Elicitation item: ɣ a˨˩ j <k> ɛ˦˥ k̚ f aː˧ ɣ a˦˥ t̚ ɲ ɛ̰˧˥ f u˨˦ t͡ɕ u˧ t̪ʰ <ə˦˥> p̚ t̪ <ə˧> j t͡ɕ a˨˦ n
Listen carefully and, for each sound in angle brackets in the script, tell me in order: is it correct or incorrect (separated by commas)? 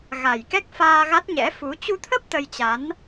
correct, correct, correct